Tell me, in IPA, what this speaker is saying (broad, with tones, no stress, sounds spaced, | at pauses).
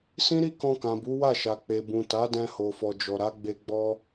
s ĩ˦ ɾ i˦ k ɔ̃˧ k ã˨ b u˨˦ w a˦˨ ʃ a˨ k͡p e˨ b ũ˨ t a˨˦ d ɛ̃˧ h o˨ f ɔ˨ d͡ʒ ɔ˨ ɾ a˨˦ ɡ͡b e˧ ɡ͡b ɔ˦